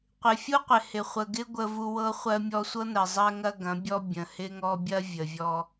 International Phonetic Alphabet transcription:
qʷ ɪ˨ fʲ u˦ qʷ ɪ˨ h ɪ˨ χʷ ə˨ ɡ ɪ˦ ɡʷ ə˦ v u˦ w ɤ˦ χʷ ɜ˦ mʲ ɔ˦ sʷ ɤ˦ n ɜ˨ zˤ ɜ˦ ŋ ɐ˦ ɡ ɐ̃˨˦ bʲ ɔ˦ bʲ ə̃˨ h ɪ˦ ŋ ɔ˦ bʲ ɐ˦ vʲ ə˨ vʲ ɔ˦

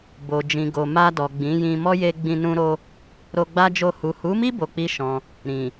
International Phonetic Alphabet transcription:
b o˨ d͡ʒ ĩ˨ ɡ o˨ m a˧ d ɔ˨ ɡ͡b ĩ˨˦ j ĩ˧ m ɔ˦ j e˧ ɡ͡b ĩ˧ n ũ˧ ɾ o˧ | ɾ o˧ ɡ͡b a˦ d͡ʒ o˦˨ h u˨ h u˨˦ m i˦ b o˧ k͡p i˦ ʃ ɔ̃˧ | ɾ ĩ˨

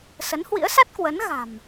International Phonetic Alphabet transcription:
s ə˨˦ n h w ḭ˧˥ ə̯ s a˦˥ t̚ k w ə˨˦ n ɣ a̤˨˩ m

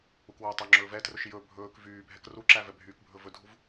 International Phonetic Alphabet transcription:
u k w æ tˤ o ŋ͡ǁ ɵː v ɛ t r ɵ ʃ j ɵ bʱ ɵː k v yː bʱ ɛ k r u ǁ æ v ɛ bʱ yː k bʱ ɵ v ɵ dʱ u v

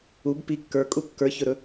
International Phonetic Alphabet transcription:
u b p i kː ə˞ kʼ u kː ə˞ ç ɵ ɾ ɵ

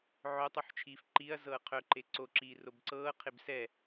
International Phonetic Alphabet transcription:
ʕ œ tˤ u ħ t͡ʃʰ iː f ǃ i ɐ̯ z ɤː qʰ œ ǃ e ǀ o ǁ iː r o b ǀ ɤː qʰ e b s ɛ

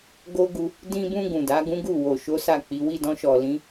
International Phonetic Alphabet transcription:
ɡ o˦ ɡ u˧ | d ĩ˧ b ũ˧ ɡ ũ˨ d a˨˦ ɡ ũ˦ ɡ u˦˨ w o˨ ʃ o˨˦ s a˦˨ k͡p i˨˦ w i˦˨ d ɔ̃˧ ʃ ɔ˨ l ĩ˨˦

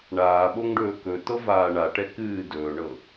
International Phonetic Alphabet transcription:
ɳ aː ɓ o ŋ ɖ ɵː k ɵ t ɤ v aː ɳ a ʈ ɛ k ɨː d ɵː ɳ ɤ

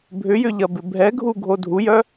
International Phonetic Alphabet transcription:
bʱ ʏ j ʏ ʎ ɐ b ɪ bʱ ɛ ɡʱ u ɡʱ o dʱ u j œ

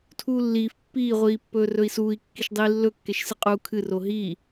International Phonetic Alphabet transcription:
tʰ uː lː iː f pː iː ʁʷ iː pː ɵː r ɵ i̯ s uː i̯ kː i ʃ dˤ iː lː ɵ kː e ʃ s ɨ qʼ uː kʰ ɨ r o ɦ iː

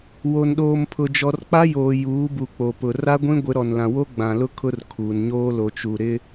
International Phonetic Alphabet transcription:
w o˨ n ɗ oː˨ m pʰ ʊ˨ d͡ʒ ɔ˨ r k͡p a˦ j oː˨ j uː˨˦ b u˨ k͡p o˨ p ʊ˨ r a˦ ɡʷ ĩ˦ ɡʷ ɪ˨˦ ɾ ɔ˨ n l ã˨ w o˦ ɡ͡b ã˨ l ʊ˦ kʰ ʊ˦ r kʰ uː˨ n ɲ oː˦ l o˨ t͡ʃ u˨ ɾ ɪ˦

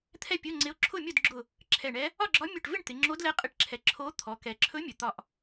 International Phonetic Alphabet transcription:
t̪ʰ ɛ˥˨ pʲ ɵ˧˥˧ ŋ͡ǀ ɪ˧˥ o̯ ǁʰ ʊ˥˨ mʲ ʊ˥˨ d ɡ͡ǁ ʊ˧˩ | ǁʰ ɛ˧˩ ɳ ɛ˧˥ | ɒ˥˨ ɡ͡ǁ ɒ˧˥ mʲ ɵ˧˩ ʈ v ɪ˥˨ ɳ t̪ ɪ˩˧ ŋ͡ǁ o˧˥ d l ɛ˧˥ qʼ ɪ˧˩ ʈ ǁʰ ɛ˩ ǁʰ o˧˥ t̪ʰ ɔ˩˧ k ɛ˩ ǁʰ ɵ˧˥ mʲ ɵ˩ t̪ ɒ˧˩ ʔ

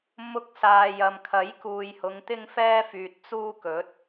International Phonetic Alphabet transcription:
m ʊ˧ k̚ s aː˨ j ɐ˨ m kʰ ɐ˨˥ j k uː˨ j h ʊ˨˧ ŋ t̪ ɪ˥ ŋ f ɛː˥ f yː˨ t̚ t͡s uː˥ k ɵ˨˥ t̚

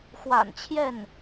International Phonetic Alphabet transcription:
x w a̰˨˩ n t͡ɕʰ j ɛ˥˩ n

